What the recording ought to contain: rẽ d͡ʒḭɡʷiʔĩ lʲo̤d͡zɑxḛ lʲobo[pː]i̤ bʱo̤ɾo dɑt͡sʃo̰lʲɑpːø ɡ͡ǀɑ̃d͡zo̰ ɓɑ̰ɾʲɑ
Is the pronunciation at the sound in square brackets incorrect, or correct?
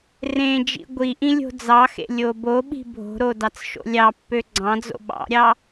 incorrect